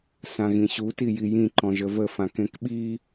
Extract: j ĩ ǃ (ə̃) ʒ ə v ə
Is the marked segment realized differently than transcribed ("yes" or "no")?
yes